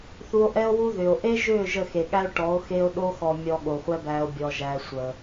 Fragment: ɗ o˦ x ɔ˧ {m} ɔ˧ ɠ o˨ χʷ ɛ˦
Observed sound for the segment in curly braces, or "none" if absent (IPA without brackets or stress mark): mʲ